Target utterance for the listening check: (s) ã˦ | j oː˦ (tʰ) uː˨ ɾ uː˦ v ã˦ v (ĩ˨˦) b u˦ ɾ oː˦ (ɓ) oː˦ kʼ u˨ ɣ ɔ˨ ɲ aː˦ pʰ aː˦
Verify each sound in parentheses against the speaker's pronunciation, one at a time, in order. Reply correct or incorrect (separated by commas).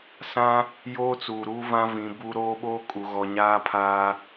correct, incorrect, correct, correct